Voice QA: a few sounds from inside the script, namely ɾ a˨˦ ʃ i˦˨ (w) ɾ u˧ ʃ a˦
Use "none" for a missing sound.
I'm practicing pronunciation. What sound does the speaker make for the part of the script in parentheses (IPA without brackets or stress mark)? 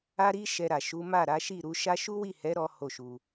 none